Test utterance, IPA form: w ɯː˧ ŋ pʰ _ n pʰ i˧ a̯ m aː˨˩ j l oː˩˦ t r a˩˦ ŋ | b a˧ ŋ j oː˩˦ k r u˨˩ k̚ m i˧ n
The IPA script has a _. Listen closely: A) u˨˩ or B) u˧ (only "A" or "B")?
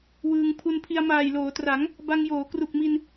B